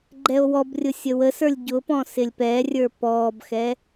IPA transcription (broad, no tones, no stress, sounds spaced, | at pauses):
ɡ͡ǃ ɛ o̯ w ɔ b rʲ ʊ sʲ ə w ə s ə˞ lʲ ɟ ʊ p ɔ̃ s ɪ lʲ p ɛ rʲ ə˞ p ɔː b x ɛ